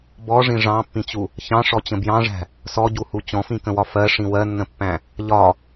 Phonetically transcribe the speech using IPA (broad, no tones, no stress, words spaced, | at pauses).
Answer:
bɔʐĩ ʐɑ̃pːĩt͡ɕu | çɑ̃ʂɔt͡ɕə̃ bjɑ̃ʐæ̤ | sɔɟuhu t͡ɕɔ̃fĩkə̃wɒ fɜʂĩ wɜnːə̃pːæ̃ | ʎɒ